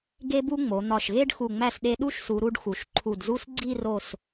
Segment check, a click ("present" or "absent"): present